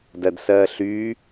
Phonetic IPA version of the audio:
dɜdsɜːɬyː

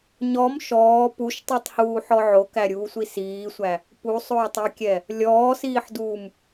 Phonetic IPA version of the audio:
ɲɔm ʃɔː puʃtˤutˤhuːħɔ ʕokæɾʲuːsʷi siːsʷæ | pusˤoːtˤɛkʲɛ | lʲɔːsiːħduːm

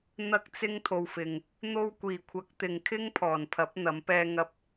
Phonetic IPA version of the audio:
n̪ɐ˧k̚t͡sɪ˧ŋ t̪ʰo˨wfɪ˨ŋ | n̪o˧wkʷiː˨˩kʷʰɐ˨˥k̚ t̪ɪ˨ŋkʰɪ˥ŋpʰɔː˨˩npʰɐ˨˥p̚ n̪ɐ˨˧mpɛː˧ŋɐ˧p̚

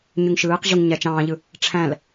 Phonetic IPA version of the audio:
ɲyŋʃɯːqʑuŋ ɲæt͡ʃɑ̃ːʎɯ | ʈ͡ʂʰæ̃l

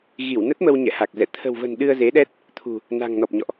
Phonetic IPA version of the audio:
ɣi˧˩wnə˦˥t̚mə˧w ɲɛ̰˧˨ha˨˩k̚zɛ̰˧˨ t̪ʰə̤˨˩wvə̤˨˩n ɗɨ˧ə̯ze˨˦ɗɛ˦˥t̚ | t̪ʰṳ˨˩ | na̤˨˩ŋnɔ˨˩p̚ɲɔ̰˧˨ʔ

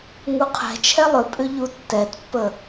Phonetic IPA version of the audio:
ŋuqʰɛ̤ t͡ʃʰɛlˠʏpʼʏ ʎutːɛtpːə

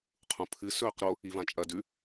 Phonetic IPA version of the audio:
qʰũpʰɨ sɵːqɾo | ivãt͡ʃʼɐ dʉ

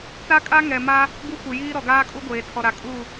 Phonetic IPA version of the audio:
t͡sa˦kʼa˦ ŋɛ˨ma˦ | ɡu˦˨kʷɪ˨jiː˦ ɾɔ˨ɡaː˦kʼu˦ ɡʷeː˨tʰɔ˨ɾa˨kʼu˦˨

